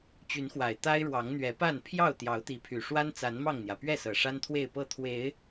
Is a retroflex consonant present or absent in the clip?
present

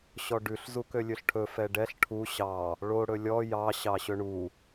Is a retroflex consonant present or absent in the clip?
present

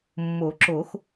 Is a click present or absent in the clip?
present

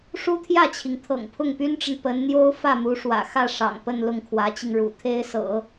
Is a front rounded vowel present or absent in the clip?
present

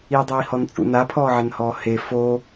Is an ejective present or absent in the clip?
present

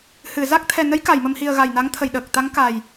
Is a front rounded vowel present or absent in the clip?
absent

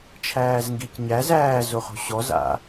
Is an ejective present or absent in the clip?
absent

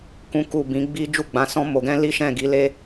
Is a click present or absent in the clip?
absent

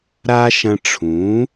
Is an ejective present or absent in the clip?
absent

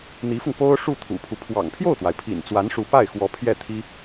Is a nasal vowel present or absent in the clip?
absent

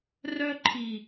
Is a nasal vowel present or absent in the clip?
absent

